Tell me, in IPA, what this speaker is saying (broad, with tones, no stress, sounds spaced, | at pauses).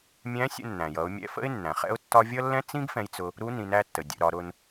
mʲ æ̃˧˥ sʲ ə̰˧ nː æ̃˩ j ʌ˩˧ ʊ̯ mʲ ɛ̰˧ f ə̰˥ ɪ̯ nː æ̃˩ χ ɛ̰˥ ʊ̯ tː ɒ˥ vʲ ʌ˥ lː ɛ̃˥ t͡s ĩ˥ ɡ f ɛ̃˧ j t͡s ʊ˧ | ɾ u˧˥ n ĩ˩˧ n æ˧ tː ə˩ dʲ ə̰˩˧ ɾ ɒ˩˧ ɾ ʊ˧ n